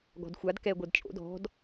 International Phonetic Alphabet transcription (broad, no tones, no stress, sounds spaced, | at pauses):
ɡ ɔ̤ d xʷ a d k ɛ ɡʷ ɤ d t͡ʃʼ o̰ d ɔ̤ d